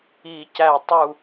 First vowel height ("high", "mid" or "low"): high